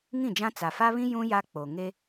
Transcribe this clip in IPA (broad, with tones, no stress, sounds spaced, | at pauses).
ŋ ĩ˦˨ d͡ʒ ã˦ t͡s a˨ f a˦ β ĩ˦ j ũ˦ j a˦ k͡p o˨ ŋ e˦